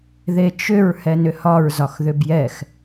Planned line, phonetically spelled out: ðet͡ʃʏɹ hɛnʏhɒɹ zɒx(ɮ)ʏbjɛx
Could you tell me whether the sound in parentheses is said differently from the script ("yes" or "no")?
yes